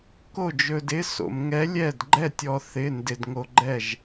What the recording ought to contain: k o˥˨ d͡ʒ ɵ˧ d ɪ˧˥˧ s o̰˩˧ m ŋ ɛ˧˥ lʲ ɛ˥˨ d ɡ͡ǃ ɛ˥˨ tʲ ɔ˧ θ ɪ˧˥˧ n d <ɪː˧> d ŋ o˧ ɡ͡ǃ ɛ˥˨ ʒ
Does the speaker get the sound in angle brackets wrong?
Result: yes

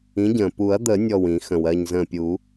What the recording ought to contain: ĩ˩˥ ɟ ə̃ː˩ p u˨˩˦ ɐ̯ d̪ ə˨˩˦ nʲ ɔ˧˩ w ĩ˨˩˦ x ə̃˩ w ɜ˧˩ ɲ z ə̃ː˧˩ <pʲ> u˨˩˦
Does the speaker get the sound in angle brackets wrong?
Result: no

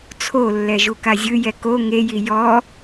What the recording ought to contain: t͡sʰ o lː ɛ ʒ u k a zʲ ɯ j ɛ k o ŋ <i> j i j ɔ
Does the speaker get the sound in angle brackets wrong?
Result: yes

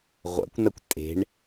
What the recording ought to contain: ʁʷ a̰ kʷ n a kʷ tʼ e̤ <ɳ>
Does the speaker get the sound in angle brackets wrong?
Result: no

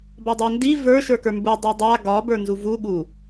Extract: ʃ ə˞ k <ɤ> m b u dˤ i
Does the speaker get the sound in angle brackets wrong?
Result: yes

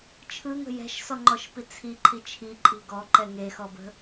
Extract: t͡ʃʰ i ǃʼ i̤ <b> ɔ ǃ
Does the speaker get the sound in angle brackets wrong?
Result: yes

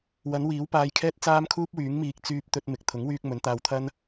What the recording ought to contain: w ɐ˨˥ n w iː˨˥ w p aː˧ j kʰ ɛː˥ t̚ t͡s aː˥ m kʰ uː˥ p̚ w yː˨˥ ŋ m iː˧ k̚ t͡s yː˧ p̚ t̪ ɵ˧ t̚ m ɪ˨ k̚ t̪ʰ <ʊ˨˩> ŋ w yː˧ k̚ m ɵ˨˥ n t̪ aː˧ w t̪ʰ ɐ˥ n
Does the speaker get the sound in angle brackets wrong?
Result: yes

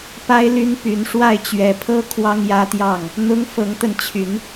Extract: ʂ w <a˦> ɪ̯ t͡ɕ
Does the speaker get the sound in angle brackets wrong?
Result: yes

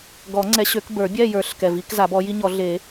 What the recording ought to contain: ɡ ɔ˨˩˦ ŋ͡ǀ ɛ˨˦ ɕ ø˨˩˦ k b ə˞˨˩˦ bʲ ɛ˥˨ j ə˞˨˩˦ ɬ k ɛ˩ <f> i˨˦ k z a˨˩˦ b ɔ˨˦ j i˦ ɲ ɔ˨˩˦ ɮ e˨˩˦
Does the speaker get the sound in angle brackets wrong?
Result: yes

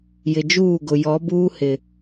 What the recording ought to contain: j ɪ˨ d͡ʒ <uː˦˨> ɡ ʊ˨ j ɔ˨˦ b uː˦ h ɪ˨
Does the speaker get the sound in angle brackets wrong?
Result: no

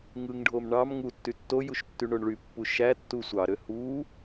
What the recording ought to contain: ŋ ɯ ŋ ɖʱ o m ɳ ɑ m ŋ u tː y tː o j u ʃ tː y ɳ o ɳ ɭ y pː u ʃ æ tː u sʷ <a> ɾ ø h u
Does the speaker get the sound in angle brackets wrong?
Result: yes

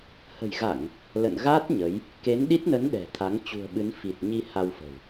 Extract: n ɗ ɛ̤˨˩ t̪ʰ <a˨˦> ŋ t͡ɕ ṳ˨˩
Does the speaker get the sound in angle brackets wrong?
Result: no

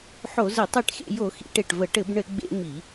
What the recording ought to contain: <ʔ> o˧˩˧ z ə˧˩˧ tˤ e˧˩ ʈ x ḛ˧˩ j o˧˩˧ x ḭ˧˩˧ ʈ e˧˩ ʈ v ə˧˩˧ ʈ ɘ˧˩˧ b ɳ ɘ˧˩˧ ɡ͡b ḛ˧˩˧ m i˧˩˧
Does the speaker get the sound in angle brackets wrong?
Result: yes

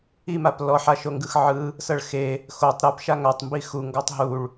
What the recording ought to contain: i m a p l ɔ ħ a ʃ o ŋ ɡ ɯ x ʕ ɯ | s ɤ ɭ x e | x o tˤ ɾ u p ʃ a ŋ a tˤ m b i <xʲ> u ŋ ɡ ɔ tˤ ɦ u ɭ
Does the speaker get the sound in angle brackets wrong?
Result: yes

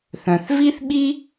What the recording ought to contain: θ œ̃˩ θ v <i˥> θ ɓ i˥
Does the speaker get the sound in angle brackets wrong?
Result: no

